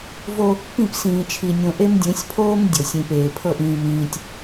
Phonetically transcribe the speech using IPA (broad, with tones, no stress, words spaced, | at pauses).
vo˦ | pĩ˦˨p sĩː˨t͡ʃʰi˨nʲõ˨ ʔe˦mdʲẽ˨˦sʲpʰoː˦m dʲɤ˨sʲ ĩ˨peː˨pʰɤ˦˨ʔ ĩː˨mĩː˨tʲ